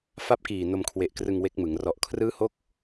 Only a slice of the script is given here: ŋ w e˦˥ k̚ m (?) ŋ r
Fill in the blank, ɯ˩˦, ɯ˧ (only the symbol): ɯ˩˦